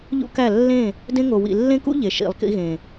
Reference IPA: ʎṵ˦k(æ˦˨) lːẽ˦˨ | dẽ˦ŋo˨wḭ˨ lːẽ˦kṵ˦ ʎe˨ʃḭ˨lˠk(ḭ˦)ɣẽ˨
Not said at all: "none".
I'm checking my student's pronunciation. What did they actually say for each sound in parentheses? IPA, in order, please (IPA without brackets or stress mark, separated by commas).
æ˦˨, ḭ˦